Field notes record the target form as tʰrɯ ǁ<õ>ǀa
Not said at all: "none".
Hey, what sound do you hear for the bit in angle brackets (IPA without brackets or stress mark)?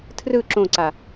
õ